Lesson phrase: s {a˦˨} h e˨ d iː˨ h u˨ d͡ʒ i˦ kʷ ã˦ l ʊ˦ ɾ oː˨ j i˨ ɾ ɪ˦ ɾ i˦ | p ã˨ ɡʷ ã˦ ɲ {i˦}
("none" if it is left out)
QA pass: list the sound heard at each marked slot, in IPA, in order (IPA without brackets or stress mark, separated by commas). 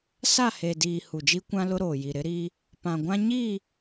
a˦˨, i˦˨